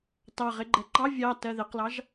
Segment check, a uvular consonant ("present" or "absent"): present